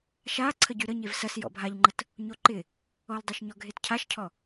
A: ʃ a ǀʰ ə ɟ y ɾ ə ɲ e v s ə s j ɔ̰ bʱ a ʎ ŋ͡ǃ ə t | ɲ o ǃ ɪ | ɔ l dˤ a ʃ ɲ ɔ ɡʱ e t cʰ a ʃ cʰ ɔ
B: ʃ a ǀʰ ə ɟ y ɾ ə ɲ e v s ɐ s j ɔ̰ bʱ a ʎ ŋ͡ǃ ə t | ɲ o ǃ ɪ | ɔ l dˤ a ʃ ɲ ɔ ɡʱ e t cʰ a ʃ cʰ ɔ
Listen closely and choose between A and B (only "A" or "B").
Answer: B